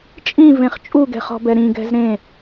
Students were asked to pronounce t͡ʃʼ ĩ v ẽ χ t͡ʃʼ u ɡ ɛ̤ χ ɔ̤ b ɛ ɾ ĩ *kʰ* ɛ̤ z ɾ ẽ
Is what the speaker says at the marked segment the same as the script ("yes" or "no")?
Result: no